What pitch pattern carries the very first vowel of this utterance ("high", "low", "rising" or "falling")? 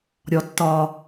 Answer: low